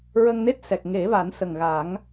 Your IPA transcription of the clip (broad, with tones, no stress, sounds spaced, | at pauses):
ɹ ə˧ ŋ n e˦˥ t̚ s ɛ˨˩ k̚ ŋ e˨˩˦ v a˨˩˦ n s ə˨˩ ŋ ɣ a˨˩˦ ŋ